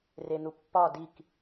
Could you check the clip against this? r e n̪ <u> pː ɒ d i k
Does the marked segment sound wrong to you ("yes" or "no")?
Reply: no